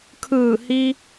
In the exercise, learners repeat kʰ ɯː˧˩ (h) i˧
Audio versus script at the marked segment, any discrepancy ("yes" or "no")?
no